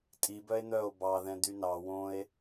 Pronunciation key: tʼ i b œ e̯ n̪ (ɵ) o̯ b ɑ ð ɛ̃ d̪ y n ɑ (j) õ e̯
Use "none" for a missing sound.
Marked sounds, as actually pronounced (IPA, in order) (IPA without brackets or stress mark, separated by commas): œ, w